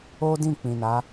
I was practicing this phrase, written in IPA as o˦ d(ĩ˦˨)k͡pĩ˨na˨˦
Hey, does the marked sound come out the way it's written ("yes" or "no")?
yes